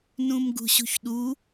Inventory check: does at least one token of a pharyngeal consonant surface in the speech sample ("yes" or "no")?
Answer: no